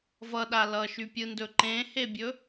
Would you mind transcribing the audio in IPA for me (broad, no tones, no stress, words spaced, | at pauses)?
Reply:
vʌɗa lʌʃypʲɯndɵ ǃẽhebʲɵ